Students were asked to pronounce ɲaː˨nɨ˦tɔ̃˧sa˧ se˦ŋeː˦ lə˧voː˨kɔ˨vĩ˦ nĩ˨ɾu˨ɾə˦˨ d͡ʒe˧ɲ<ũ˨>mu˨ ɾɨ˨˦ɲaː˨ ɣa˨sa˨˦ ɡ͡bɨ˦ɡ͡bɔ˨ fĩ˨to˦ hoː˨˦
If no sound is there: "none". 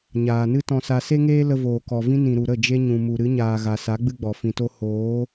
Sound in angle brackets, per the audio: ũ˨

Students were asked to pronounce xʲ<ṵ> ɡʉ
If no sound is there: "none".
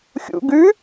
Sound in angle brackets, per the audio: ṵ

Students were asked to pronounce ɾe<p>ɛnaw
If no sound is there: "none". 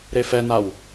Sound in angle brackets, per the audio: f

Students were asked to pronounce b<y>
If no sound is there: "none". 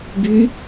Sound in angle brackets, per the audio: y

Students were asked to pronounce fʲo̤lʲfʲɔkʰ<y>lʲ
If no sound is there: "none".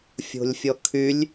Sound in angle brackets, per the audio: y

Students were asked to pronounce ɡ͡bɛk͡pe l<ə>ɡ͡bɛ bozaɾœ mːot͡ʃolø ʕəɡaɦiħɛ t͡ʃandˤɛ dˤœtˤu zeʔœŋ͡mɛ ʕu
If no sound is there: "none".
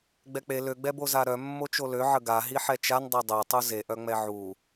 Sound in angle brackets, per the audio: ø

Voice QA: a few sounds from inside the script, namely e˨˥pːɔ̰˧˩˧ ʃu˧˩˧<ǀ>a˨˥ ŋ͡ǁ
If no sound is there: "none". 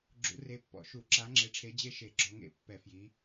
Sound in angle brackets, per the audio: ǁ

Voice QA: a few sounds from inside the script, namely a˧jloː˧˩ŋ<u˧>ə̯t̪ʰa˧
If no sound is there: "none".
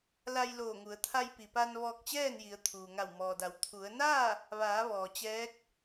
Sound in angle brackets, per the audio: u˩˧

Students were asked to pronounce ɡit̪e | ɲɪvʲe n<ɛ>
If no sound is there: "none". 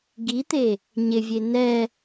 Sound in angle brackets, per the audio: ɛ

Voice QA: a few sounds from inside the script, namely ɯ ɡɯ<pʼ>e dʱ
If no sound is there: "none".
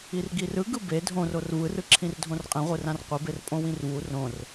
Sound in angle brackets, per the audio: b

